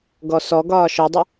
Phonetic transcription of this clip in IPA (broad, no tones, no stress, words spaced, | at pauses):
ɡɔsɔ ɡɒːʃɔdˤɪ